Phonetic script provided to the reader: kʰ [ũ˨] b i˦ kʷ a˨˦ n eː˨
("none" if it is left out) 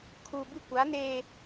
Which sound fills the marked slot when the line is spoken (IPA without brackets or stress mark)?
u˨